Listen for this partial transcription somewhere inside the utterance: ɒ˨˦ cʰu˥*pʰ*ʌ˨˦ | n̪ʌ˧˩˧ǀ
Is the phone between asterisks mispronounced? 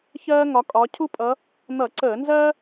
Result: yes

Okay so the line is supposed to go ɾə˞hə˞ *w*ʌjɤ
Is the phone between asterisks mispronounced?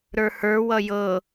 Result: no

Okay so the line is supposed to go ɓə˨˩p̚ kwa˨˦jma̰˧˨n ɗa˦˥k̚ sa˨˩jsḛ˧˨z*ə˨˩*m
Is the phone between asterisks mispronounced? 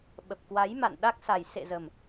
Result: no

